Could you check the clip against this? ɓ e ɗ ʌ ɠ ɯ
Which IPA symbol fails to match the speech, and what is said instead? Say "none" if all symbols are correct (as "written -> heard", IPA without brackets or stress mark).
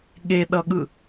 ɓ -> ɠ